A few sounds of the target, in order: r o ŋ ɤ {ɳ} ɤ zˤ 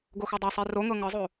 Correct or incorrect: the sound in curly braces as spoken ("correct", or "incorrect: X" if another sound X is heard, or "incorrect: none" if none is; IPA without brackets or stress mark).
incorrect: ŋ